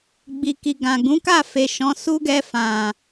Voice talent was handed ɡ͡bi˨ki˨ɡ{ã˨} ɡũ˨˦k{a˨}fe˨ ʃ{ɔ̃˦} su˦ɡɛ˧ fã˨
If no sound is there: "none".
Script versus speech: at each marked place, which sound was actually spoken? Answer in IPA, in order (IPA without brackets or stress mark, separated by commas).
ã˨, a˦˨, ɔ̃˨˦